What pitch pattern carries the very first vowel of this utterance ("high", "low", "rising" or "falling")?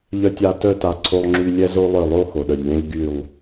high